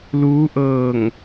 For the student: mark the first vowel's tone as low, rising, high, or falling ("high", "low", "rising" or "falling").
rising